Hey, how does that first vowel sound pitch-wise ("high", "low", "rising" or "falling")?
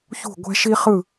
falling